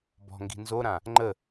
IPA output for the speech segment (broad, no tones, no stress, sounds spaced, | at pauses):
b ɔ̤ ŋ ɡ i̤ n z o ɾ ã | ŋ͡ǃ ə